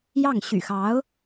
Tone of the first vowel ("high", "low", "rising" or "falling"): falling